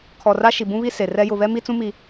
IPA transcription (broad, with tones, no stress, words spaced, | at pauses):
kʰɔ˨ra˦ ʃi˨bũ˦βi˦ se˨ rɛ˦ jʊ˨βɛ˦mi˦t͡sũ˦ mi˦